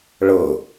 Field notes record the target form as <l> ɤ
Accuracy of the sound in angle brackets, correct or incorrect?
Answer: incorrect